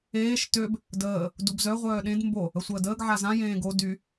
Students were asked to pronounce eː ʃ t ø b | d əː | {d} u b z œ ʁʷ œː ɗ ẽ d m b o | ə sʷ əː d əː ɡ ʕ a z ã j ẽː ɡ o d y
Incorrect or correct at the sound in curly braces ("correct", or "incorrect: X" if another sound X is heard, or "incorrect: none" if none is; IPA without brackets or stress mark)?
correct